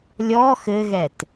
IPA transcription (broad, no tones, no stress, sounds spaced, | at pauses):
lʲ ɔ x ɘ ɣ ɛ t